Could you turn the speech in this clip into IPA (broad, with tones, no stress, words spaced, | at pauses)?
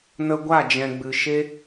nə˧ɡʷa˦˨d͡ʒɛ̃˨ ɡ͡bɨ˨ʃe˦